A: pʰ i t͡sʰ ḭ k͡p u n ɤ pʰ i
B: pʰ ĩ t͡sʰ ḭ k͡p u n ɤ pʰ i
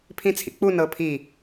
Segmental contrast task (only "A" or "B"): B